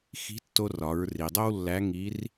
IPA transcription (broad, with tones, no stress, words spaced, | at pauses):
xi̤˧˥tːo˧rɒ˩˧ɹ ri˩dˤo˥wlːæ˧˥ ŋi˧˥r